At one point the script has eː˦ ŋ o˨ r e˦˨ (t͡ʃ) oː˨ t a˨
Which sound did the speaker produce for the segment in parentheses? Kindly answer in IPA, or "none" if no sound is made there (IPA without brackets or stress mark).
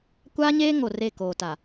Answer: k